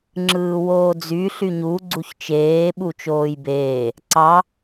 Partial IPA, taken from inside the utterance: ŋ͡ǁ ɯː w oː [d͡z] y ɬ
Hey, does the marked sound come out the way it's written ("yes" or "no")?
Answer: yes